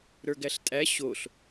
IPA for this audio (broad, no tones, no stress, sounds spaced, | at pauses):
ɾ ə˞ ɡ æ ɬ tʼ æ ɕ o ɬ